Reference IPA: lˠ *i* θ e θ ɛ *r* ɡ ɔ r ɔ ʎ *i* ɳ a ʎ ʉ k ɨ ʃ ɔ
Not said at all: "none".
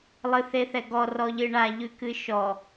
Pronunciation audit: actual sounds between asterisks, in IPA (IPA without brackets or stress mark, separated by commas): ɨ, none, ɨ